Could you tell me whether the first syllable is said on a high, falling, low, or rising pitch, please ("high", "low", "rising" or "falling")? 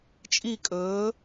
falling